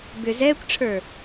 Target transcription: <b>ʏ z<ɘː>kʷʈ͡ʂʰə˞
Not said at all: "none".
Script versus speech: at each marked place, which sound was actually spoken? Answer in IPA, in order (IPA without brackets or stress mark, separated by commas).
b, ɛː